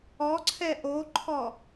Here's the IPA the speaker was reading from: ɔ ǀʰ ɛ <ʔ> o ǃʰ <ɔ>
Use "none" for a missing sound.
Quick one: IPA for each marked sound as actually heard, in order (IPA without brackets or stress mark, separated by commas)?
ʔ, ɔ